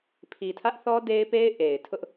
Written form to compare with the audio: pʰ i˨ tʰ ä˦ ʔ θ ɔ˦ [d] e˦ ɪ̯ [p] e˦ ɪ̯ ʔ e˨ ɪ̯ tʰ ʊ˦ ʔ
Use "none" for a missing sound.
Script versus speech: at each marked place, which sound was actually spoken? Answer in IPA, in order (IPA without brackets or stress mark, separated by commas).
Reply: d, p